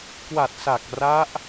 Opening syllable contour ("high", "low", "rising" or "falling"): low